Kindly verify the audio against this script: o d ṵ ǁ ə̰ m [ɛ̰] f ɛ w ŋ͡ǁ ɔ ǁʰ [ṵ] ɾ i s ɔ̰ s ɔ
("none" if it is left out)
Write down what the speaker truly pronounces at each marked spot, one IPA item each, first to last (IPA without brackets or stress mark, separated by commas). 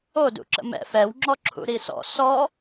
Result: ɛ̰, ṵ